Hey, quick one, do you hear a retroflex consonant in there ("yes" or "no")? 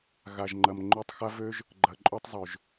no